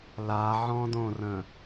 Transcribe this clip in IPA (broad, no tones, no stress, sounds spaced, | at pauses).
l a ʕ ɔ̃ d õ r ə̃